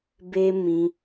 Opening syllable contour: high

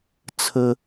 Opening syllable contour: high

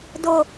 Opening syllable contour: low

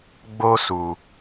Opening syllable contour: high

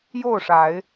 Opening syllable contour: falling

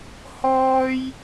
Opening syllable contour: high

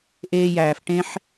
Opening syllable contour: high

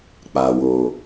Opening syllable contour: low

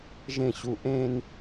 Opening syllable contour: falling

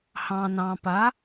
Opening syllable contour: low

